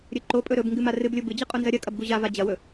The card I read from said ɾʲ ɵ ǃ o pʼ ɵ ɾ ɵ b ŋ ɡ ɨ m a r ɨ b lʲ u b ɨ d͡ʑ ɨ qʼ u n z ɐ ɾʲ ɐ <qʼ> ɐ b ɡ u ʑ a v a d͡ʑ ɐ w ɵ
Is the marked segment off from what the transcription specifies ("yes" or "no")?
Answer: yes